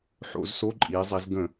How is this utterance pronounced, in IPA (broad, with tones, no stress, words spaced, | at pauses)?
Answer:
ħo̰˧˩˧z so˧˥˧ǃʼiː˩˧zˤi˩˧z ɡə̃˧˩˧